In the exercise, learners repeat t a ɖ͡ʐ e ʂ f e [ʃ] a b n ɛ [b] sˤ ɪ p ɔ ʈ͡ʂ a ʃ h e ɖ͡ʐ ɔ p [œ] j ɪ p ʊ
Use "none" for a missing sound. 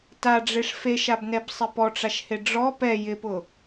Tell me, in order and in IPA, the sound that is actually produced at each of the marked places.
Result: ʃ, b, ɛ

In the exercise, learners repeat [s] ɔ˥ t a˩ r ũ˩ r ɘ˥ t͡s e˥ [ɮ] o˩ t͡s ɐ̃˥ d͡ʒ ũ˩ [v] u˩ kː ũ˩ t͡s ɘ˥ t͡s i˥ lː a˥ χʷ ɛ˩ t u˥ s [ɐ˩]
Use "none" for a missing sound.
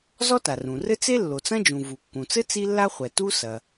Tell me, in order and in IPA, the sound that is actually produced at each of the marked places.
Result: z, lː, v, ɐ˩

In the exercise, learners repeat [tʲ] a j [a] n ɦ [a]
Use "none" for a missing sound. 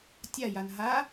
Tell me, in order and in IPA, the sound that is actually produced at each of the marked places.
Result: tʲ, a, a

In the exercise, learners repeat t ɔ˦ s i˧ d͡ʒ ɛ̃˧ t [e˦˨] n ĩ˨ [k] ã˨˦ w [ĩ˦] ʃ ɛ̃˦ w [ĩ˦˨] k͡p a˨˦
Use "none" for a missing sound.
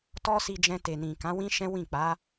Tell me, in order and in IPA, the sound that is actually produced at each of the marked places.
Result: e˨, k, ĩ˦, ĩ˦˨

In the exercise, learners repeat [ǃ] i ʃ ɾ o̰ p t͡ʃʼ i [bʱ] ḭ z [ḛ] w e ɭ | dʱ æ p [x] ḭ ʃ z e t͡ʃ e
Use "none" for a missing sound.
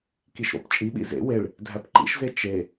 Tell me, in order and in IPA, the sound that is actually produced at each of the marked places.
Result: k, ɓ, ḛ, ǃ

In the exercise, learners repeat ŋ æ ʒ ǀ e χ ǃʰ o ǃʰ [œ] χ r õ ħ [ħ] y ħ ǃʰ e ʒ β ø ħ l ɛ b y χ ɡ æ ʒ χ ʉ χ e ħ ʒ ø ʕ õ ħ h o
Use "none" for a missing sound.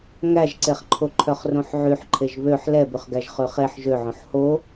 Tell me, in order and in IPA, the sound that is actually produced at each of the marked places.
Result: œ, ʕ

